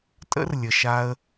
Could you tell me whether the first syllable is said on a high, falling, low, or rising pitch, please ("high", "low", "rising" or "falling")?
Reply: high